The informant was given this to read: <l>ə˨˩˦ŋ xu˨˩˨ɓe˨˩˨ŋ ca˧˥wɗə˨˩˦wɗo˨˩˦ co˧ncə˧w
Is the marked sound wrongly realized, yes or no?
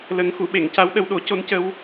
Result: no